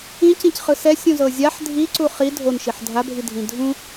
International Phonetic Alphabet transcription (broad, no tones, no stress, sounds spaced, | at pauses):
ĩ c ĩ c χ ɯ s ɛ sʲ ũ z ɤ zʲ a ħ dʱ i ǀ u χ i dʱ o n ʃ i ħ dʱ a bʱ i dʱ ĩ dʱ ũ